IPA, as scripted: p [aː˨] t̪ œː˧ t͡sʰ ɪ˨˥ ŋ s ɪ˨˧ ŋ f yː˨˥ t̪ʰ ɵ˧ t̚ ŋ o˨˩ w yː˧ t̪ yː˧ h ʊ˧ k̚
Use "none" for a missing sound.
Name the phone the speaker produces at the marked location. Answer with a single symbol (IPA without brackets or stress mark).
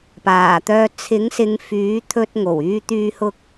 aː˨˩